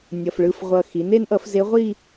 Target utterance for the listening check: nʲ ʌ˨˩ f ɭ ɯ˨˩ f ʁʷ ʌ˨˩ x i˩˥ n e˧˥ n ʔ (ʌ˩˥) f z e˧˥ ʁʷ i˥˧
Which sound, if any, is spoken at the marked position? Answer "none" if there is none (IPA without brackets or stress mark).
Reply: ʌ˩˥